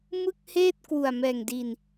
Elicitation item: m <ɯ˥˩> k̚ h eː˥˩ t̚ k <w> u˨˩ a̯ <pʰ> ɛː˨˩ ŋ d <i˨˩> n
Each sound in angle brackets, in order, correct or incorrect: correct, correct, incorrect: m, correct

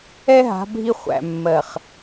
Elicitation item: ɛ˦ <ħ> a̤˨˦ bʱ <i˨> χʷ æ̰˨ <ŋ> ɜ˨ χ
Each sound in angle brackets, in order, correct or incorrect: incorrect: ɦ, incorrect: i˦, incorrect: mː

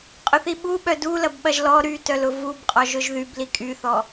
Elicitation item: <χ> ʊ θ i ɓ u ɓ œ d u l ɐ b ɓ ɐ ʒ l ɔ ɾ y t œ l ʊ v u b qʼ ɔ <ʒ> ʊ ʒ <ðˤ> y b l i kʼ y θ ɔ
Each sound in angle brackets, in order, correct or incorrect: incorrect: qʼ, correct, incorrect: ð

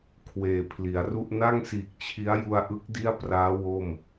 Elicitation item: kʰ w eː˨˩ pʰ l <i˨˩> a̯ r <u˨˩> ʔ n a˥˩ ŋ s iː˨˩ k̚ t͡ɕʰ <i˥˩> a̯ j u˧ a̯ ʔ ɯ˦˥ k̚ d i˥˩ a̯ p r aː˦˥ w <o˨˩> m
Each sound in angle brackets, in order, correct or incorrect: incorrect: i˩˦, incorrect: u˥˩, incorrect: i˦˥, incorrect: o˥˩

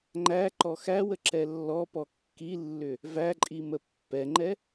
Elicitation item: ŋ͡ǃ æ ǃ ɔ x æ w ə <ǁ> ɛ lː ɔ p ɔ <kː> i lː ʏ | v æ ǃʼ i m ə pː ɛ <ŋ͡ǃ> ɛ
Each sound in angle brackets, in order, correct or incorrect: correct, correct, correct

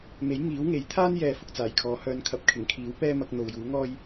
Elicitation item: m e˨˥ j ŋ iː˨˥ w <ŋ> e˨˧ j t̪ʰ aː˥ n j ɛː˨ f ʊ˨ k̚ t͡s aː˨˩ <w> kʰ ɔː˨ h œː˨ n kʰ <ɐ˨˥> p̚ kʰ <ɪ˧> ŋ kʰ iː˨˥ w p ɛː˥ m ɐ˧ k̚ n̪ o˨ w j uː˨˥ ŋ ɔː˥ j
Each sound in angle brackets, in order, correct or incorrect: correct, incorrect: j, correct, incorrect: ɪ˨˩

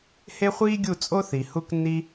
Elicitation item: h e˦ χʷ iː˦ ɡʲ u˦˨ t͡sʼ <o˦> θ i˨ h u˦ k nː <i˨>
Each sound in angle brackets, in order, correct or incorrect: correct, incorrect: i˦

